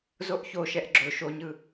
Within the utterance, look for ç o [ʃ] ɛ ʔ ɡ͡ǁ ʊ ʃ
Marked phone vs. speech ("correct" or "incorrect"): correct